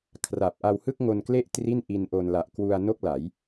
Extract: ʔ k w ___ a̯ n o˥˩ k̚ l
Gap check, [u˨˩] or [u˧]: u˧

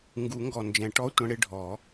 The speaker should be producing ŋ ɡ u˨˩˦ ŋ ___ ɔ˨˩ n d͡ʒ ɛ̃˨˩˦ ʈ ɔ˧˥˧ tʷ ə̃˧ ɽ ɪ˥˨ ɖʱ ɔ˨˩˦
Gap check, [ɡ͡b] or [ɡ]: ɡ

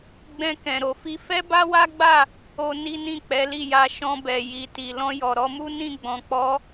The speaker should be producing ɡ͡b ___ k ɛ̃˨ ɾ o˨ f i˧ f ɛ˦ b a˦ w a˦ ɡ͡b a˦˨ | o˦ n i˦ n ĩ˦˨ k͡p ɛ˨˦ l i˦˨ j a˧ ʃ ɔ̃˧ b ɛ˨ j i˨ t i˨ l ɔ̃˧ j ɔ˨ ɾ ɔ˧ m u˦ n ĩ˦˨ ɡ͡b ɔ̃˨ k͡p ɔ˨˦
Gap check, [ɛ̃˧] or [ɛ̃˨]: ɛ̃˧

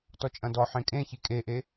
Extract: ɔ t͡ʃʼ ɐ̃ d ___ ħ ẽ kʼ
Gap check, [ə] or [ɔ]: ɔ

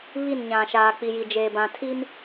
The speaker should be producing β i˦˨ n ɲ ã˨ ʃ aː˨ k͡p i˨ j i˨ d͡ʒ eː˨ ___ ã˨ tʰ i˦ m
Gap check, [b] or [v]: b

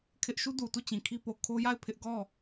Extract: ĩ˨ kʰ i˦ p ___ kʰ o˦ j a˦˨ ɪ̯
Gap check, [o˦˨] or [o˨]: o˨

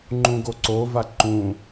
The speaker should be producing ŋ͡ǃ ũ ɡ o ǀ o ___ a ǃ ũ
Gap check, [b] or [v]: v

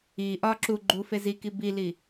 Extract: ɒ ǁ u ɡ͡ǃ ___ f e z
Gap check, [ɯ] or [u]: u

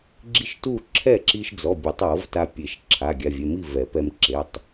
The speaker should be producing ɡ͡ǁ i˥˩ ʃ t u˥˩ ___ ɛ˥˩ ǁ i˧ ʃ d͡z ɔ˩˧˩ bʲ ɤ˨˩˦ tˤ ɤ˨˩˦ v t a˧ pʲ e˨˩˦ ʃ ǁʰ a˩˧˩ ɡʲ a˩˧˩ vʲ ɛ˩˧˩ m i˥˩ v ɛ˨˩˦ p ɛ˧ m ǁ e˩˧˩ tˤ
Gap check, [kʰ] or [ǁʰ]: ǁʰ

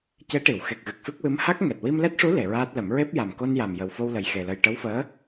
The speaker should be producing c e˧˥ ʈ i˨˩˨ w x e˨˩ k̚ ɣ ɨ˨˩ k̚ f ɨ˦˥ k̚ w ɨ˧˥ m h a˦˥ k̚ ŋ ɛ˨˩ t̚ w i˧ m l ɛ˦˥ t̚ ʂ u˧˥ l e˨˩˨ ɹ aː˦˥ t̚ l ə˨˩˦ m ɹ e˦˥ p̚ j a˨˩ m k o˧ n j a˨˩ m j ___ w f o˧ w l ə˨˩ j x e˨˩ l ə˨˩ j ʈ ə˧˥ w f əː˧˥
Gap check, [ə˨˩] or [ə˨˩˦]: ə˨˩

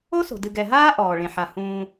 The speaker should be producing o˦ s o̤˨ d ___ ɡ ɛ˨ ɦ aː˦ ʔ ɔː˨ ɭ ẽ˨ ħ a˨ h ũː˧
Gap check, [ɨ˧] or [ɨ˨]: ɨ˨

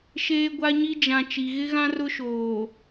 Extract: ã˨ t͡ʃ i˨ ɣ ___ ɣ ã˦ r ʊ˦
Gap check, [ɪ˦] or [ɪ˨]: ɪ˦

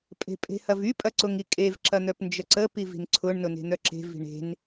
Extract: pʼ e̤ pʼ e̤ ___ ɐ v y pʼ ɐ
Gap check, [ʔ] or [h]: h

